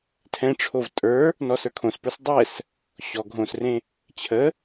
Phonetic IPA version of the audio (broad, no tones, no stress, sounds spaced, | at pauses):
tʰ ɛ̃ ʈ͡ʂʰ o v tʼ ə˞ | n ɔ s ə˞ kʰ õ s p ə˞ s dˤ ɛ s | ɕ ɔ ɡʱ õ s r ẽ | t͡ɕʰ ə